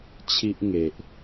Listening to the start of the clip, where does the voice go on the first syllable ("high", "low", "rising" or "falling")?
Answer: high